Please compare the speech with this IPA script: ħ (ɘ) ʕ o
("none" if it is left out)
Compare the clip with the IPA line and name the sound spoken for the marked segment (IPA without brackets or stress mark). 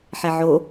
ɛ